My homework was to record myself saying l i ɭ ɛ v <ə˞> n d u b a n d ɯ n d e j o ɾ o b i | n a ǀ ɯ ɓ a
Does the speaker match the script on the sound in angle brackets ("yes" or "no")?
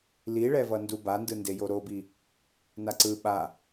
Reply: no